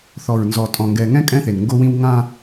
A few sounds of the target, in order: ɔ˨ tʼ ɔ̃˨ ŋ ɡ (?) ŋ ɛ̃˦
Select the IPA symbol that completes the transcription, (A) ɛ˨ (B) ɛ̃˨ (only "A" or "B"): A